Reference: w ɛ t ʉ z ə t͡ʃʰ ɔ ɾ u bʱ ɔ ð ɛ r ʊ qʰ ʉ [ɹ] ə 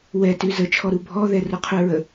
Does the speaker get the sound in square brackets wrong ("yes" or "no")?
no